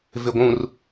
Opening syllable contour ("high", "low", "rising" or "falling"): low